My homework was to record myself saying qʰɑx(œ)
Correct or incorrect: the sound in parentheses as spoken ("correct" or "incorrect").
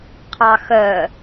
correct